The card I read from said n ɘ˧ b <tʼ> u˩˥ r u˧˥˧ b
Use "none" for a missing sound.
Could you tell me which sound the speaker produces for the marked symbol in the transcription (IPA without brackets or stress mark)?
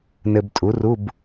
tʼ